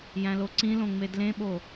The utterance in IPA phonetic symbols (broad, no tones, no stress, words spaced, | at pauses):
jæ̃loǀĩlõ ŋ͡medlẽɓo